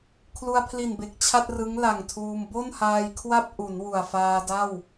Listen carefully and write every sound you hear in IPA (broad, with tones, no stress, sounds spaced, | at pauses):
kʰ l u˧ a̯ pʰ l i˨˩ n b e˨˩ k̚ t͡ɕʰ a˥˩ t̚ r ɯ˦˥ ŋ l a˨˩ ŋ tʰ uː˧ m b o˥˩ n h aː˧ j kʰ w a˥˩ p̚ ʔ u˩˦ n w u˨˩ a̯ f aː˧ d a˥˩ w